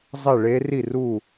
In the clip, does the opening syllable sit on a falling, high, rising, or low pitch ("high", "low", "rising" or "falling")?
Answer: falling